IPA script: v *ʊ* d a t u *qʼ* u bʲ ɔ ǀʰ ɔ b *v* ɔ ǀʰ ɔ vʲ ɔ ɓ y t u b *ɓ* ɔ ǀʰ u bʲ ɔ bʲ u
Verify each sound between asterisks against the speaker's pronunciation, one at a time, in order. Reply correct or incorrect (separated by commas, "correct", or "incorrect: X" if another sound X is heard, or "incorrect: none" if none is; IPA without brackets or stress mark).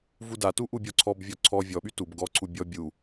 incorrect: u, incorrect: ʔ, incorrect: vʲ, incorrect: ɡ